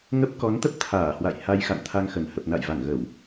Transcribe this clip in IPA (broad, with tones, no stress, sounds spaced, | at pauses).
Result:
ŋ ə˦˥ p̚ k ɔ˨˦ n t̪ ə˦˥ p̚ t̪ʰ aː˧˩ h w a̰˧˨ j h a˧ j x a̰˧˨ n t̪ʰ a˧ ŋ x ə˧˩ n h ə˨˩ p̚ n a̰˧˨ j v a˧˩ ŋ ɣ ə˧˩˨ w